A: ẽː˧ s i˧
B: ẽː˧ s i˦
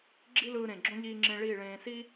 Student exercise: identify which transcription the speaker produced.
B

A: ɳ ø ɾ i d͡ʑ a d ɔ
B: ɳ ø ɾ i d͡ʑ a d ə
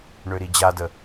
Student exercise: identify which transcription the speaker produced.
B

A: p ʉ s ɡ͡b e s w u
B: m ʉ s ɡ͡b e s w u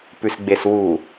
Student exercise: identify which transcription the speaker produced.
A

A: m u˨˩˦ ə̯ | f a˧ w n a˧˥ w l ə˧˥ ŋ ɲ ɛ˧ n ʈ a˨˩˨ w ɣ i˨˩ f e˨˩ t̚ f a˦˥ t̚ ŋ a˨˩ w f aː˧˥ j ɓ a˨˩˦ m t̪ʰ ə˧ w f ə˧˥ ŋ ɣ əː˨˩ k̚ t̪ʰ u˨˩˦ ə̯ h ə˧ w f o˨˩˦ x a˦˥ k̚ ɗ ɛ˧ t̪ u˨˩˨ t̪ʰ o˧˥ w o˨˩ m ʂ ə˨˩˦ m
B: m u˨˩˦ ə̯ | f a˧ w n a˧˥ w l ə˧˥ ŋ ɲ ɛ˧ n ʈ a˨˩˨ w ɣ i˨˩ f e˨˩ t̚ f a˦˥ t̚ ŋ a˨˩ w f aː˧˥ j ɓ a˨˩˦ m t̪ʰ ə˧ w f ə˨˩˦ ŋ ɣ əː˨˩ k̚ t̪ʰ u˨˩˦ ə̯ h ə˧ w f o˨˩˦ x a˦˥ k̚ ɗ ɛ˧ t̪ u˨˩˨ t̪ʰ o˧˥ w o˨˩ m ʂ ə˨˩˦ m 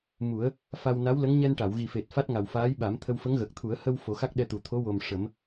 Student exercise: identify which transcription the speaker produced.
A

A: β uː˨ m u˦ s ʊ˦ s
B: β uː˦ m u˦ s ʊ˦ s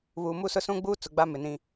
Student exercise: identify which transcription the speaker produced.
A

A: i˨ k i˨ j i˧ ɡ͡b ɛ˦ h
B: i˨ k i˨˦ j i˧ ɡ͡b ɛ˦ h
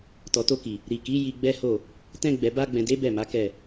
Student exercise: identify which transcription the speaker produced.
B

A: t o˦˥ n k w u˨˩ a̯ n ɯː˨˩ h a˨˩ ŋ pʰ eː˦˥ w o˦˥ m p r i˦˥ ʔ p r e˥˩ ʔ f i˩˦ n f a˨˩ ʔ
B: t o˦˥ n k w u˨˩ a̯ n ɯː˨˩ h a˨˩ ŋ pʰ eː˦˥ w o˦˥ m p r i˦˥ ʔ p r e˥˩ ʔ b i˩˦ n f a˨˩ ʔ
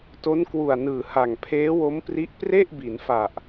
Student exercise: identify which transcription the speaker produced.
B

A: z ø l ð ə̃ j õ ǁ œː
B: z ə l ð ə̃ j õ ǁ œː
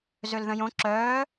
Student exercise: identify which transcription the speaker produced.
A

